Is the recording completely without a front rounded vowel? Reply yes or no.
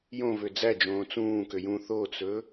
no